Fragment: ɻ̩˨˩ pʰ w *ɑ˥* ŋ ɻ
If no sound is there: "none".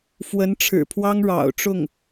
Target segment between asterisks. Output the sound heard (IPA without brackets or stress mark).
ɑ˥